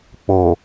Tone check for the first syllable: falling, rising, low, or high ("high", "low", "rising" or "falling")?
low